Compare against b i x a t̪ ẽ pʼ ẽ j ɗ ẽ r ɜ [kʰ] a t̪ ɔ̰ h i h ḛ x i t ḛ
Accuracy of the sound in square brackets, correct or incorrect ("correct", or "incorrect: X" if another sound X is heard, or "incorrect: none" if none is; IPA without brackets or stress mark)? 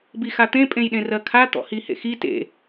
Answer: correct